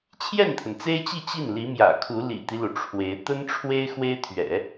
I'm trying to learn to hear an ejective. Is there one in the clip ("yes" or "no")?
no